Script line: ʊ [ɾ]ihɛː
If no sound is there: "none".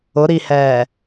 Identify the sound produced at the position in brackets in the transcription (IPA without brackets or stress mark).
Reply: ɾ